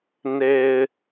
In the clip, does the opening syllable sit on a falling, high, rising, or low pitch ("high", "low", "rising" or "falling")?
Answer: low